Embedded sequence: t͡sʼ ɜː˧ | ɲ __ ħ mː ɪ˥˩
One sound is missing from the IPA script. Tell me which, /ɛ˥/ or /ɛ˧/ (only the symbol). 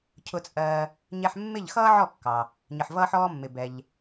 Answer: ɛ˧